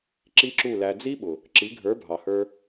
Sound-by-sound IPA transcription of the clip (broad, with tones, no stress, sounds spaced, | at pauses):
ǁ i˦ ǁ u˦˨ l æ˧ d͡z i˦ ɓ ʊ˨ | ǁ i˨˦ ɡʱ ə˞˨˦ bʱ ɑ˨ h ə˞˧